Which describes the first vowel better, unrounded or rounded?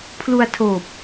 rounded